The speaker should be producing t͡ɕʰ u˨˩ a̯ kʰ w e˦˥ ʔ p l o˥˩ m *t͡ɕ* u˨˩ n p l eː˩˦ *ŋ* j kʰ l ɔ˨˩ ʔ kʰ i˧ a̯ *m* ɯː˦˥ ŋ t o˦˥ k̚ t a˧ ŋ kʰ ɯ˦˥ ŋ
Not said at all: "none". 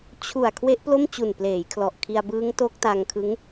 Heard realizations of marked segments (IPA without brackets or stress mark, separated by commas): t͡ɕ, none, b